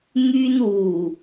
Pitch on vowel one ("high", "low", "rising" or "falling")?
high